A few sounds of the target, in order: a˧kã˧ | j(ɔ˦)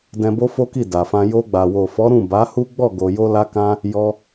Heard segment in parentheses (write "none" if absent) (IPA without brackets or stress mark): ɔ˧